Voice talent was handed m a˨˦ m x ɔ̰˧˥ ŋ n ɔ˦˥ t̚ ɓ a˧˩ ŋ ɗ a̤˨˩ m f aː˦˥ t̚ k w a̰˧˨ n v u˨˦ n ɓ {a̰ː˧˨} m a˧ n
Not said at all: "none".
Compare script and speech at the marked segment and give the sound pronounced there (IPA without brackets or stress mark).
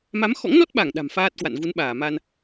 aː˧˩